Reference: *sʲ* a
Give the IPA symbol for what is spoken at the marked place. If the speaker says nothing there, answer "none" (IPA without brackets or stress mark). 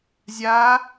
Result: zʲ